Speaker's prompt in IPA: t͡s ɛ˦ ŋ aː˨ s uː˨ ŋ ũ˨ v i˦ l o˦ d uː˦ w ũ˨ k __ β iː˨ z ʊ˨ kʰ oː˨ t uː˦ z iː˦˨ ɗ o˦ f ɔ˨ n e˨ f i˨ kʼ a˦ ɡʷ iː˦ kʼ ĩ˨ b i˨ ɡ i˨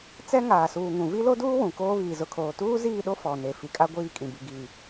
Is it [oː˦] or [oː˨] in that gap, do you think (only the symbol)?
oː˦